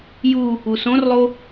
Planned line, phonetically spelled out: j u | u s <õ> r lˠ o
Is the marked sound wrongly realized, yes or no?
no